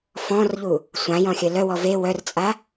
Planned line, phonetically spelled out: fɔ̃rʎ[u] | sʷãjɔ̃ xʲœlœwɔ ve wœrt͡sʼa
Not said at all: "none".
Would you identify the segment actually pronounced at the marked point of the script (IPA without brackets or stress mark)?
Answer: u